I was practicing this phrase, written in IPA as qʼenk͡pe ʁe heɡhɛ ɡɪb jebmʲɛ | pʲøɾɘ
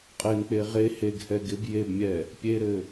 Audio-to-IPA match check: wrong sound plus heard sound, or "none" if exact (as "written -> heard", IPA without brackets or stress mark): ø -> e